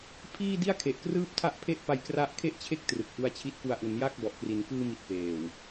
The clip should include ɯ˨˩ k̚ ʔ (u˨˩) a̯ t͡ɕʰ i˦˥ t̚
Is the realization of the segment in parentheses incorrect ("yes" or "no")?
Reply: yes